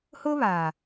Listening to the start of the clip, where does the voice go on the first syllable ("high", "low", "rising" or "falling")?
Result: high